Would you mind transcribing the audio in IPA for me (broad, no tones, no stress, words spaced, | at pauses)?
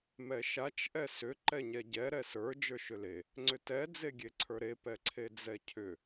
mɛʃat͡ʃ ʔɛsʏ ǃɛɲɛɟɛ ɾɛsə˞ d͡ʒə˞ʃʏle | ŋ͡ǀʏtɛ d͡zeɡʲeǀʰə˞ɾe pɛǀʰed͡zɛcʰʏ